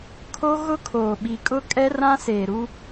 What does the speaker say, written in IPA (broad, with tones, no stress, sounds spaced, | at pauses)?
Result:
kʰ o˦ ɣ ʊ˦ kʰ oː˨ ɓ i˨ kʼ ʊ˦ kʼ ɛ˦ r ã˦ s eː˨ ɾ u˦